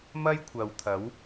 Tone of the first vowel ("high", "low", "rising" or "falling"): high